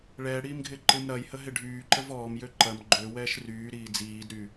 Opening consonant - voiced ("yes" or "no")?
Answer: yes